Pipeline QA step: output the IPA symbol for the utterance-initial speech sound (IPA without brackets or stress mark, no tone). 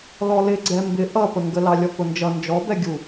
l